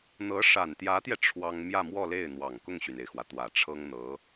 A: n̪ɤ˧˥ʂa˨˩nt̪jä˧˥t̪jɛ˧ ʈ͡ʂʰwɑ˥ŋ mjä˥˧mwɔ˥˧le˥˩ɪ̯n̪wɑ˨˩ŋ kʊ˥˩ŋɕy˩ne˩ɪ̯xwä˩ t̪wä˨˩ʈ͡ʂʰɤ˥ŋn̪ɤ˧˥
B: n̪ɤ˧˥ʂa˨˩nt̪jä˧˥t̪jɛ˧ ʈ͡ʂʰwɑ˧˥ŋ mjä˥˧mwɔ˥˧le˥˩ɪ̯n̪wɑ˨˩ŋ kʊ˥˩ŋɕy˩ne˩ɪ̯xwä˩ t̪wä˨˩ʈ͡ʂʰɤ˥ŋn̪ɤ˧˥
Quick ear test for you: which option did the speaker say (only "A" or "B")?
A